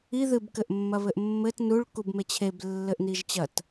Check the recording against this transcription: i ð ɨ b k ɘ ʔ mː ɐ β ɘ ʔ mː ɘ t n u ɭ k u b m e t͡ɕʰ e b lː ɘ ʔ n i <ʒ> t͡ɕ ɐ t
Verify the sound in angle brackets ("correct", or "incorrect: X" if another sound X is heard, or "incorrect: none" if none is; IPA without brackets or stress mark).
correct